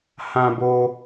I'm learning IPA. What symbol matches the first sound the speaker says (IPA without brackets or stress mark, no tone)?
h